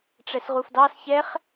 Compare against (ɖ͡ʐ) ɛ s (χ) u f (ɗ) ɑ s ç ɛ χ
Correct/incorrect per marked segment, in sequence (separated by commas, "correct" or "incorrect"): incorrect, incorrect, incorrect